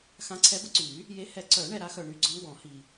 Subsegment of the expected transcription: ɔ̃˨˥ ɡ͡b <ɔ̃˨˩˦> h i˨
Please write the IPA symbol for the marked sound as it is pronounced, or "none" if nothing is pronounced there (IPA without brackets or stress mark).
ɔ̃˨˩˦